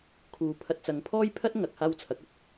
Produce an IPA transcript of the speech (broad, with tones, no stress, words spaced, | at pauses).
kʰuː˨pʰɐ˧t̚ t͡sɐ˨˧ŋpʰɔː˥jpʰɐ˥t̚ ŋɐ˨˥k̚haː˥w t͡sʰɐ˨˥k̚ɐ˨t̚